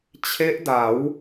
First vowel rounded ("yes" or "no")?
no